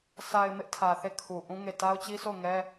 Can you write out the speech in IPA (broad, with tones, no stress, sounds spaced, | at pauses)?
s a˨ ɪ̯ m ɪ˦ ʔ tʰ ä˨ θ e˦˨ kʰ u˨ ʔ ũ˦ ŋ e˦˨ t a˦ ʊ̯ t͡ɕ i˦ s o˦˨ ʊ̯ ŋ ɛ˦